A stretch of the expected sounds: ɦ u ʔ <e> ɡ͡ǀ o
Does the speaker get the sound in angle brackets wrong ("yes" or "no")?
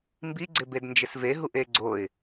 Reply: no